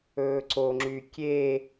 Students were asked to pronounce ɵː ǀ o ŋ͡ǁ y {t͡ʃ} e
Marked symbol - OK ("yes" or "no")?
no